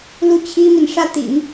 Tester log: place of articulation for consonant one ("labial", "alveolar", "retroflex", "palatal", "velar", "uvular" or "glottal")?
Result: alveolar